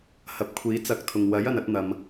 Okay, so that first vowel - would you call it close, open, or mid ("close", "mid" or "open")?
open